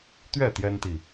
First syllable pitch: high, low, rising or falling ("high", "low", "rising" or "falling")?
falling